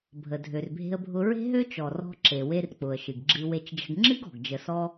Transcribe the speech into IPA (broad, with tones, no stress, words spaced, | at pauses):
bʱə˩dʱø˩rbʱe̤˧ə̯bʱʊ˧ ɹe̤˥ɦø˥t͡ʃɔ˩ rɔ̤˧ǁe˩ we˧rk͡pʊ˩ə̯ ʃɨ˩ɡɡ͡ǁɨ˧ we˧t͡ʃd͡ʒə̤˧ɡ ŋ͡ǁɨ˥ɡɔ̤˩ɡ d͡ʒə˧sɔ˥